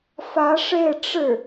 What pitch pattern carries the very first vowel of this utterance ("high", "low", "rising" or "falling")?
rising